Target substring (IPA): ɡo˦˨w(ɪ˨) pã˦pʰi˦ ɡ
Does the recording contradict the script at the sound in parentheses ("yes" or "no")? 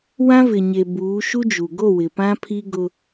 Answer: no